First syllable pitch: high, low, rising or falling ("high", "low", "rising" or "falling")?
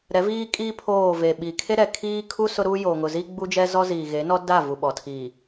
rising